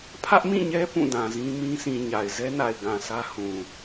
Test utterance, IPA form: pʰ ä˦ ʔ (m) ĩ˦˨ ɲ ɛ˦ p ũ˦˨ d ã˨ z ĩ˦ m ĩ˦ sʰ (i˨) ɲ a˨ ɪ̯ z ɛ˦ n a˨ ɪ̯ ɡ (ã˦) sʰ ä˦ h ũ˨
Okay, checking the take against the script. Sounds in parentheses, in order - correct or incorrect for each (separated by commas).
correct, incorrect, incorrect